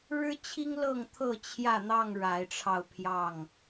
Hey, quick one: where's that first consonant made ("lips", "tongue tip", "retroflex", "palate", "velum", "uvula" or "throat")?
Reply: retroflex